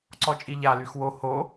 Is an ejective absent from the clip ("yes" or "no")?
no